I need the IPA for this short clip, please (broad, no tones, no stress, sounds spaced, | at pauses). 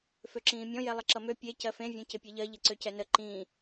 f ø ǁ ĩː mʲ ɔ̃ j ɛ lˠ ə ǁ ʌ m ø pʲ e c ɜ f ẽ vʲ õ c ɪ pʲ e ʎ ɜ ʎ ɪ ǀ ø c ɛ n ə ǃ ĩ